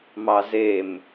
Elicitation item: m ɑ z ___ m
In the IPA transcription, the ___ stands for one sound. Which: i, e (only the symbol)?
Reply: e